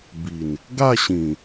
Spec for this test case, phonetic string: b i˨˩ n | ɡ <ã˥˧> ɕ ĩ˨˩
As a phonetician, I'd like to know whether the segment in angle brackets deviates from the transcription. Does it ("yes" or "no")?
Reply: yes